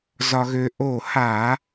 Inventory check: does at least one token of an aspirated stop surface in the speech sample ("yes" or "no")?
no